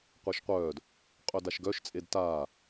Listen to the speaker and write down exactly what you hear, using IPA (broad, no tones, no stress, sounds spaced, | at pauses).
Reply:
qʷ e ʃ qʷ œː d | qʼ œ d a ʃ ɡ œ ʃ t͡sʼ e d t aː